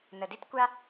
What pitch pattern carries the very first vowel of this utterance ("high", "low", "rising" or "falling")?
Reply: low